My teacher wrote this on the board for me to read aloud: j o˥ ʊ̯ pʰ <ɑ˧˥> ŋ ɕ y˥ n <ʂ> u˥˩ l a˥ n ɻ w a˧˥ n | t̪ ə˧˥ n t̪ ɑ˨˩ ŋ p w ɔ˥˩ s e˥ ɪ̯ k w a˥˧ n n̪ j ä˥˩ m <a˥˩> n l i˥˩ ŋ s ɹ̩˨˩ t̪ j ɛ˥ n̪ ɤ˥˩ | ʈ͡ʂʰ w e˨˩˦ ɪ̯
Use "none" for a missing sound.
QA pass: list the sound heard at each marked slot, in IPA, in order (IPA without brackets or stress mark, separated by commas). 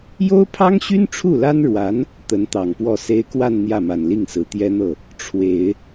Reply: ɑ˥, ʈ͡ʂʰ, a˨˩